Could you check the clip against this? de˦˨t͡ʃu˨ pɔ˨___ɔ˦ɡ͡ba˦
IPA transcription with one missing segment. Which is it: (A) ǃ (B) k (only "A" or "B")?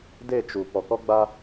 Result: B